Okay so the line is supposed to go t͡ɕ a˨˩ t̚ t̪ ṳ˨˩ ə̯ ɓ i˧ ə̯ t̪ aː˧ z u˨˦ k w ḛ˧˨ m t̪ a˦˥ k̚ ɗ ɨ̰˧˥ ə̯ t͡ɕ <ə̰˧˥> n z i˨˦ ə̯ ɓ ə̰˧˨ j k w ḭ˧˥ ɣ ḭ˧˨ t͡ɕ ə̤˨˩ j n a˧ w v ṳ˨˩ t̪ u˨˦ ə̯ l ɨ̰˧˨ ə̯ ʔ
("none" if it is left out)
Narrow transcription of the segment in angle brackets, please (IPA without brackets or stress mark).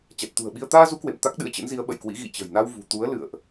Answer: ə̰˧˥